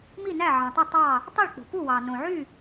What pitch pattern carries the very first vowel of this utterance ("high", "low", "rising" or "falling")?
falling